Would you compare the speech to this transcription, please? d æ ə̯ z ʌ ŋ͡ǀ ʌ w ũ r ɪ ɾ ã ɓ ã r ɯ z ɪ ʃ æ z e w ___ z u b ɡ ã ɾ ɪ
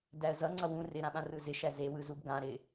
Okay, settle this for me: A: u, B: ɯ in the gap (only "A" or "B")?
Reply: B